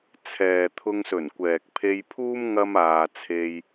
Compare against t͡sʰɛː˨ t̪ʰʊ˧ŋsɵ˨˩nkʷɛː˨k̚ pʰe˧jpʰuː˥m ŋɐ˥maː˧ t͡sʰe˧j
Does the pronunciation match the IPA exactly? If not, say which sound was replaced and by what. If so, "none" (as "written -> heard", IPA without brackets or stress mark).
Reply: none